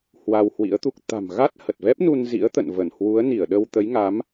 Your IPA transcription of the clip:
h w a˧ w h w ḭ˧˥ ə̯ t̪ u˦˥ k̚ t̪ a̤˨˩ m ɣ a˦˥ t̚ h ə˨˩ t̚ v ɛ˦˥ p̚ n u˧ n z ḭ˧˥ ə̯ t̪ ə̰˧˨ n v ə˧˩ n h w u˨˦ ə̯ n i˧˩ ə̯ ɗ ə˧ w t̪ ə˨˦ j ŋ a˨˦ m

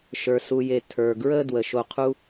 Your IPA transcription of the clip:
ʃ ə˞˨ s u˨ j e˨ tʰ ə˞˨ ɡ ɹ ə˧ d w ə˨ ʃ o˧ qʰ u˦

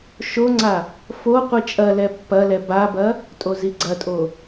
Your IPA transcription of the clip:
ʃ o ŋ͡ǀ a | f o qʷ i t͡ʃʼ ɐ l ɛ pː ɐ l ɛ b a b ɐ | tʼ o z i ɡ͡ǀ ɐ tʼ o

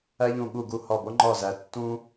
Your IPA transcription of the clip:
æ˦ ʎ ũ˧˩ ɠ u˧˩ ɡ u˧˩ h ɒ˧˩ b o˦ ŋ͡ǃ ɒ˧˩ z æ˩ tː ũ˦

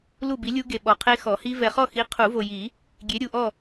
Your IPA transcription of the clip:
l u˥˨ b i˨˥ lʲ u˦˥ ɡ e˨ ɓ ɔ˨ qʰ e˦˥ x ɔ˨˩˦ h i˦˥ v ɛ˨ χ ɔ˥˨ x i˨˥ qʰ u˨˩˦ v o˨ j i˨˩˦ | ɡʲ e˨˥ ɾʲ u˨ ʔ ɔ˥˨

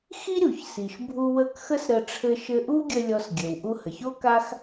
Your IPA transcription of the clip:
x i˥ ɾʲ u˩ ç s i˩ ʃ bʱ u˧ w ə˧ k x ə˥ s ɾ ə˧ ʈ͡ʂʰ ɘ˧ ʃ ɘ˧ ʔ u˥ ɡʲ ə˧ lʲ ɔ˧ s ɡʲ ɘ˩ w ʔ u˧ h ə˩ ç o˥ k a˥ x

